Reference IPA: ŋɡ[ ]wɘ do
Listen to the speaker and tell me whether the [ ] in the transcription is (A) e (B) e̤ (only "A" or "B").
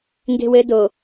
B